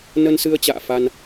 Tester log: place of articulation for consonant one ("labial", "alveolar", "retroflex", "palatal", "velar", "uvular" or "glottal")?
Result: alveolar